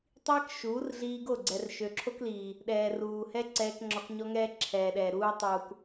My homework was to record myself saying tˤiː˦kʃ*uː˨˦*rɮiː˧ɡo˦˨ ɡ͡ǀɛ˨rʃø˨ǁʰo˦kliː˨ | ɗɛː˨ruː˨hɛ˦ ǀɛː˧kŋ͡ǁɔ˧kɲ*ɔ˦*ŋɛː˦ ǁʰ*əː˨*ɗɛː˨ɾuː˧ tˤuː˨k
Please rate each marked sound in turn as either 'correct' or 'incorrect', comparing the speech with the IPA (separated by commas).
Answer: correct, correct, incorrect